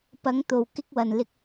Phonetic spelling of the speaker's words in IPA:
pɐ˨˧ŋt̪o˨w kɪ˧k̚wɐ˨nlɪ˧k̚

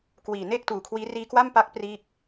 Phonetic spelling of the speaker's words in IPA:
kwiː˨˩ne˥˩k̚tuː˨˩kʰwiː˦˥ riː˧kwa˥˩mpa˦˥k̚ priː˥˩k̚

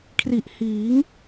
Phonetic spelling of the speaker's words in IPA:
kʰri˨˩ʔ hiː˩˦ŋ

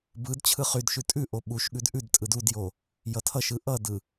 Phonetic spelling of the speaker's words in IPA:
bɯd t͡ɕʰɯχydʃʉ tʼʉʔo ɓuʃɠʉd ʔʉdtʼɯd udjo | jʌtʰʌʃɯ ʔʌdɯ

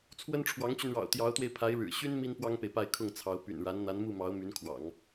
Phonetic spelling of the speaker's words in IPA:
t͡sʰwə˥nʈ͡ʂʰwɑ˧˥ŋt͡ɕy˧nɻɑ̰˨˩ʊ̯ t̪jɑ˧˥ʊ̯t̪we˧ɪ̯pʰa˧˥ɪ̯ɻɻ̩˨˩ ɕy˥n mi˥npwɑ˥ŋpe˨ɪ̯ pa˥˧ɪ̯ kʰʊ˥˩ŋt͡sʰɑ˧˥ʊ̯ py̰˨˩nɻa˧˥n n̪a˧˥nmu˥˩mɑ˧˥ʊ̯ my˧˥nkʰwɑ̰˨˩˦ŋ

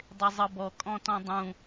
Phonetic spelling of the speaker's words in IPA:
dˤezˤɤbɔ kʼɔ̃tɔ̃dˤũ

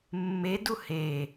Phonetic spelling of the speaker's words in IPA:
mːedu he

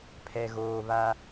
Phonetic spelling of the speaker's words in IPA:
pʰɛ˨ɣoː˨βa˦

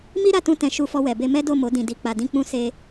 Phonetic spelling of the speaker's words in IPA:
mi˦ɾa˦˨tũ˧ tɛ̃˨ ʃu˧fɔ˧wɛ˨be˧ mɛ˦do˦˨mo˨˦ dĩ˧di˧ k͡pa˨dĩ˧k͡pũ˧ se˧

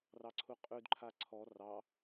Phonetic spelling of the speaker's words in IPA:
rɑǀʰuqʼʉd ǃʰaǀʰɔ rɑ

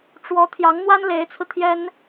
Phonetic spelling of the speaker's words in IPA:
ʈ͡ʂwɔ˧˥ t̪ʰjɑ˧˥ŋn̪wa˥n le˧˥ɪ̯t͡sʰɹ̩˧t̪ʰjɛ˥n

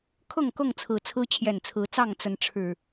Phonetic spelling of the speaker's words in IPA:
kʰɤ˥˨ŋkɤ˥˨ŋt͡sʰɹ̩˨˩ t͡sʰɹ̩˦t͡ɕʰjɛ˨˩nt͡sʰɹ̩˨˦t͡sɑ˥˨ŋ t͡sə˨˦n ʈ͡ʂʰɻ̩˨˩

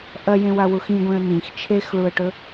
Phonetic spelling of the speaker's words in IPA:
ʔɐjẽwawux ĩɡʷẽə̯ nĩx t͡ʃʰexɭuə̯ʈɵ

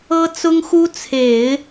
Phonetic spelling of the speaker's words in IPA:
ɤ˥t͡sʊ˥ŋxu˥ t͡sʰe˨˩˦ɪ̯

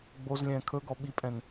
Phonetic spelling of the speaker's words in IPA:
ɡ͡boz lʲɛ̃ːkʰɵɡɔ ɓipʼɛ̃n

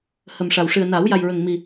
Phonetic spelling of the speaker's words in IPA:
hə˨˩mʂa˨˩wʂɨ˨˩ə̯na˨˩˦w ja˨˩jɹə˨˩ŋmi˨˩

